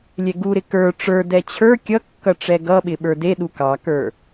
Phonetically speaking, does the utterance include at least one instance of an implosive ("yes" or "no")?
yes